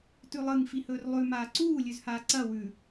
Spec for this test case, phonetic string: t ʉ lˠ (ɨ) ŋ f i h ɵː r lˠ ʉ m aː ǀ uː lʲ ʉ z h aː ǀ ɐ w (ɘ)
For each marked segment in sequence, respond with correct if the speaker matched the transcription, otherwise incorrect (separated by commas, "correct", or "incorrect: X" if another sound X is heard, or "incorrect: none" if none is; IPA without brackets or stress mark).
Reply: correct, incorrect: ʉ